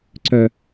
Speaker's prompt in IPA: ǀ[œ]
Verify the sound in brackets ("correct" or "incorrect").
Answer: correct